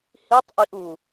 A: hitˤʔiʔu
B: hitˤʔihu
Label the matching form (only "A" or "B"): A